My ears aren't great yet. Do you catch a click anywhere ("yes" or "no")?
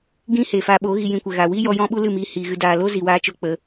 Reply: no